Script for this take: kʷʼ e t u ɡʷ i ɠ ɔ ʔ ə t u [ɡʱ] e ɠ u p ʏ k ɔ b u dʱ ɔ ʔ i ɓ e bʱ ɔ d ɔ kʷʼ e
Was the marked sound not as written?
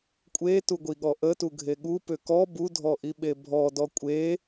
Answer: no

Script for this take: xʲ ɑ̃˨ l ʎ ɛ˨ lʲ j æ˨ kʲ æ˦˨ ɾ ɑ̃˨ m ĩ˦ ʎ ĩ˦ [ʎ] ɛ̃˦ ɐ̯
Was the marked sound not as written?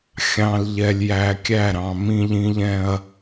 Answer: no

